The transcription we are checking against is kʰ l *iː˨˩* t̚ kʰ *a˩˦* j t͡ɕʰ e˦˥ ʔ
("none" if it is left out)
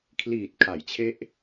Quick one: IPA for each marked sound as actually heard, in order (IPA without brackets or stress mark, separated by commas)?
iː˨˩, a˩˦